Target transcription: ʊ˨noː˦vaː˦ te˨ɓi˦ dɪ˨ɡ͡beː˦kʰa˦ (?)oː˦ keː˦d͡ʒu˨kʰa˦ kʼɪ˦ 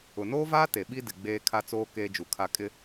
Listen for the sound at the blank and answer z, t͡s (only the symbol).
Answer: t͡s